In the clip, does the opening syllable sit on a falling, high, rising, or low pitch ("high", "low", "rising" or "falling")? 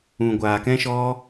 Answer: low